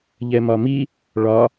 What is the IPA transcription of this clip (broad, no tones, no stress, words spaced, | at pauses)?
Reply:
ʎɛmɒmi | ɭɒ